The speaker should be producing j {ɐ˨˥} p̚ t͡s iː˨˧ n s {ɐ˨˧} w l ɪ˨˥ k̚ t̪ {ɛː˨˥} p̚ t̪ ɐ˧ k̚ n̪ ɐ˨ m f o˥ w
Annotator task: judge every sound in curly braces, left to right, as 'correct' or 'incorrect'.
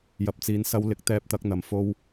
incorrect, incorrect, incorrect

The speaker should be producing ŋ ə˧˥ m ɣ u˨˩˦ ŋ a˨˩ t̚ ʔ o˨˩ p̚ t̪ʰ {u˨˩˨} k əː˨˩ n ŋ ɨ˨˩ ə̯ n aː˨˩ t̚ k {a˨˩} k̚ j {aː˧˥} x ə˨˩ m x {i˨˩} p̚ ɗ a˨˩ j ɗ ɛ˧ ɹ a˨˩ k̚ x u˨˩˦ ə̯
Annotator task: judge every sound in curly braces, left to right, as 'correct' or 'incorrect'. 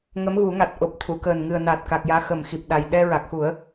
correct, correct, correct, correct

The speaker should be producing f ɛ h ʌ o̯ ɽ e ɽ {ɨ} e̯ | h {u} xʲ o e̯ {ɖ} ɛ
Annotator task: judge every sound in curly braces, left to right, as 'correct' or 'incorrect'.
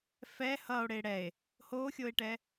incorrect, incorrect, incorrect

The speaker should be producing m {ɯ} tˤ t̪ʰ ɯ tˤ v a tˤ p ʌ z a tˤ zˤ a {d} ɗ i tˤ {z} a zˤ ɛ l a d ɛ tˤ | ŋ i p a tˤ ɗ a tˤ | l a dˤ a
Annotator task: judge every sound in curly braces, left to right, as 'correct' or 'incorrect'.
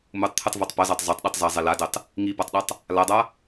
incorrect, incorrect, correct

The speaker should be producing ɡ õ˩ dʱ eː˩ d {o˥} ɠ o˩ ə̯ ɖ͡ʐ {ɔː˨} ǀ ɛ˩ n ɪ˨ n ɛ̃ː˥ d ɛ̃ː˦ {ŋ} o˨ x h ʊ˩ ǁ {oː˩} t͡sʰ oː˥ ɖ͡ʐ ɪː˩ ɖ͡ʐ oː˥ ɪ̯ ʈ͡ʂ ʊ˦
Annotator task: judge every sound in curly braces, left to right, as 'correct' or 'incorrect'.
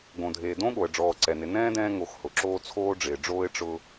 incorrect, correct, correct, incorrect

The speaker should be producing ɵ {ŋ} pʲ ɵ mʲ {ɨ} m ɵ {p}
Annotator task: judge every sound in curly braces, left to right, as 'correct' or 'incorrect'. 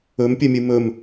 incorrect, correct, incorrect

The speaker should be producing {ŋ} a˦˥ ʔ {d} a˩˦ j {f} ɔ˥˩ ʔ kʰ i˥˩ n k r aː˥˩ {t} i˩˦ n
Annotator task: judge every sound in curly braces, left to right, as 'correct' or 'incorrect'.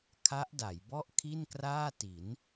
incorrect, correct, incorrect, correct

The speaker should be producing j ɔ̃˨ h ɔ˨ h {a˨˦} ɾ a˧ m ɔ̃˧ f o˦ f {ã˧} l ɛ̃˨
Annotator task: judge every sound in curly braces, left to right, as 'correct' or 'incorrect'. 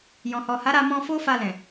correct, incorrect

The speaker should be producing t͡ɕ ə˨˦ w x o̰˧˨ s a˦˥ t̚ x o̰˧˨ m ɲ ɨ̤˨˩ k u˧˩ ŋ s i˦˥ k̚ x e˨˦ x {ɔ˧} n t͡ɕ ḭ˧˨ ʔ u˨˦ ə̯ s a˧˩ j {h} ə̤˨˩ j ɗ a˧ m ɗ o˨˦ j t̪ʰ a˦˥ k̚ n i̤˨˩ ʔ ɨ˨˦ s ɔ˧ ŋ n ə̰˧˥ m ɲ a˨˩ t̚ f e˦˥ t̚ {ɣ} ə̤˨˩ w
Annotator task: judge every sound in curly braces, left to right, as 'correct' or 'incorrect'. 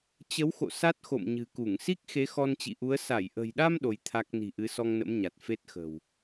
correct, incorrect, incorrect

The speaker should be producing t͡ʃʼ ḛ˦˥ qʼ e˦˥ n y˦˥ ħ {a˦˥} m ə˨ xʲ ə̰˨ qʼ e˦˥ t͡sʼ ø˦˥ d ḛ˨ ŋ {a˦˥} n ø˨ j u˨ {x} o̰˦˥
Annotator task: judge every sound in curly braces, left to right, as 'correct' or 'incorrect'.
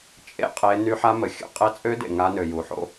correct, correct, incorrect

